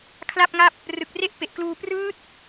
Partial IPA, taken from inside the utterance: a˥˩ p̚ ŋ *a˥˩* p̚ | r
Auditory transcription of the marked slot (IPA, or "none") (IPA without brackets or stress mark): a˥˩